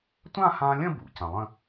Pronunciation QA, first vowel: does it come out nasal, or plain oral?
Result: nasal